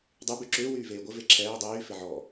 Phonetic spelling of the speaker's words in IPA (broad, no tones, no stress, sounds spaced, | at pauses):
dˤ y b y ǁ ʏː w yː v eː ɡʷ ɪ v e ǁʰ ɛː dˤ yː f ɪ ʕ ɔ